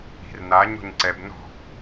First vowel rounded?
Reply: no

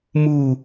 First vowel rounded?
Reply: yes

